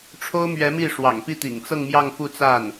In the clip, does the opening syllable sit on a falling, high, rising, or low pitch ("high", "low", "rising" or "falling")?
high